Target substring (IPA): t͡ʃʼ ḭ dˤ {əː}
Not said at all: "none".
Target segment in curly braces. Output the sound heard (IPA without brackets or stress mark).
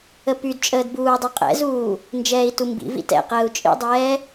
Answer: ɛː